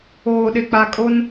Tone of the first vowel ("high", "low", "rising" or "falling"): low